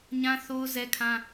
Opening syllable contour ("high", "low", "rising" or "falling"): high